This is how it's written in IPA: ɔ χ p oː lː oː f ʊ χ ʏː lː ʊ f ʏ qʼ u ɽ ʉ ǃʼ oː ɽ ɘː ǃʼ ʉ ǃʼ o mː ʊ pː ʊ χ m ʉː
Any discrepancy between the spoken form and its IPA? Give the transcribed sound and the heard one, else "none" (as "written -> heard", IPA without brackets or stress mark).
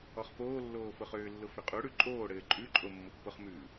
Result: none